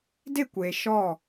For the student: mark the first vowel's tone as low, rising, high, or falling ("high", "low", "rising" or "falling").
falling